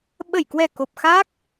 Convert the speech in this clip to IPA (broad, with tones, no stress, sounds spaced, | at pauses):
ɓ ə˧˩ j k w ɛ˨˩ k o˨˩ p̚ x a˦˥ k̚